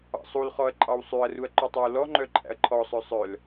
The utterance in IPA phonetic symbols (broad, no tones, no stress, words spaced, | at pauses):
ɑ̰sˤulχɔɐ̯ ǃʼɑwsˤʉɐ̯ruɐ̯ ǃʉtˤœwlɔŋ͡ǃœ ǃʼæ̰ɐ̯ǃʰɔsˤœ sˤœl